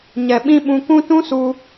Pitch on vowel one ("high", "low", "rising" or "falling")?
low